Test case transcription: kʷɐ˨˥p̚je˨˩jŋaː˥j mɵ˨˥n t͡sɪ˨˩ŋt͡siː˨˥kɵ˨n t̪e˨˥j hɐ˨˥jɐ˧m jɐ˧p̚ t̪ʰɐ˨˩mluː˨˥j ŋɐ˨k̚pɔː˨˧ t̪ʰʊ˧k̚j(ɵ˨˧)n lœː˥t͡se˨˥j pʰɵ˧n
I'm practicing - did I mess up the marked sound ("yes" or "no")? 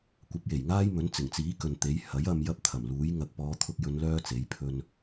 no